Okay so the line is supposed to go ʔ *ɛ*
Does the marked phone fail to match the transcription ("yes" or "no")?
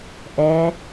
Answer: no